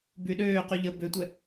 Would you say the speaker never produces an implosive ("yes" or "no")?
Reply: no